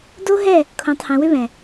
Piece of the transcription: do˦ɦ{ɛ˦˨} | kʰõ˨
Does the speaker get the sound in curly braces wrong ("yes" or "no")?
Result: no